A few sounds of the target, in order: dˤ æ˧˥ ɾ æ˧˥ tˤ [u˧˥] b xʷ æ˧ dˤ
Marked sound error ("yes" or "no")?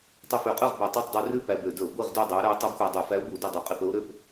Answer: yes